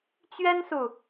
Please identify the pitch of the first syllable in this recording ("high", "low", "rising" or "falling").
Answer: high